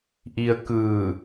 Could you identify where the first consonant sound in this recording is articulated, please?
glottal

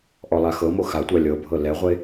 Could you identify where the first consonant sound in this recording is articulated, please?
glottal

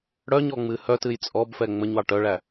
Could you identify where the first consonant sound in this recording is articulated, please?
retroflex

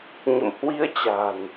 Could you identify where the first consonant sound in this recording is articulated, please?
palatal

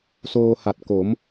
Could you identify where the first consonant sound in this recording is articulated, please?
alveolar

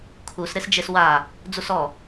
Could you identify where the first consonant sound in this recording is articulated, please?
velar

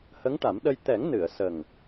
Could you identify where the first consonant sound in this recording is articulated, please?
glottal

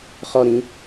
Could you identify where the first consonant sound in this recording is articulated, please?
uvular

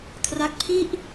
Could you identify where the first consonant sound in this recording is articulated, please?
velar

